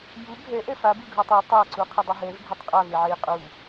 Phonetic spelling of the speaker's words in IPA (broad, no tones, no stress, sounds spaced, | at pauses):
j u ɡʱ ɛ ʔ ɛ f a b ɯ ɡʱ ɯ tˤ ɯ tˤ a ǀ u qʰ ʌ dˤ u ɦ ɛ v ɡʱ ɛ tˤ qʼ a v e ʕ e j qʼ u